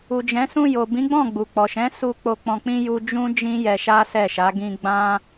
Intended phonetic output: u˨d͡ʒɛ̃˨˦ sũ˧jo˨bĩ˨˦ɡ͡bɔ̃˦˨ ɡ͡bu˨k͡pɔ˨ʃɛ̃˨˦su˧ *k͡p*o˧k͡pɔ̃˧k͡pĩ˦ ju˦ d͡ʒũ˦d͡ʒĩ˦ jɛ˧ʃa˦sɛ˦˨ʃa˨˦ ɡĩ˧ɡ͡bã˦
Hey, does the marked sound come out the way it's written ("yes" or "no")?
yes